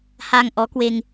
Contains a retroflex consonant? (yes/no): no